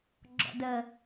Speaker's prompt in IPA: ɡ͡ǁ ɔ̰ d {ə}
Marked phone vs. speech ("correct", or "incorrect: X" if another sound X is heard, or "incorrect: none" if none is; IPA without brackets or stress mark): correct